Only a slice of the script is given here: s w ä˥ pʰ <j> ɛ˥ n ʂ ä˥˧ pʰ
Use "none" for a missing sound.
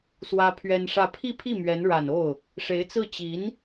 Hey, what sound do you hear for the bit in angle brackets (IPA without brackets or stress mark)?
ɥ